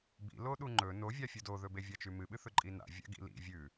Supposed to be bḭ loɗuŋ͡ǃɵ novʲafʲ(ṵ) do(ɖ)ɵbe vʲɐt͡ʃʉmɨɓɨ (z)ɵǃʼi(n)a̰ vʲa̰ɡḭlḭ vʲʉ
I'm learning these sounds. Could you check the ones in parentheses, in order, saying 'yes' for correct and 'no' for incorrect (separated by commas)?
no, no, no, yes